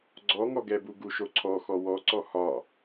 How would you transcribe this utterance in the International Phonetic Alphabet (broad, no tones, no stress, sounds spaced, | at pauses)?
ɡ͡ǀ ɔ ŋ ɔ ɡ ɛ b u ɡ u ʃ o ǀʰ ɔ x ɔ w ɔ ǀ ɔ h ɒ